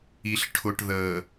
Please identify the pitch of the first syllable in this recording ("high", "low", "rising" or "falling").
low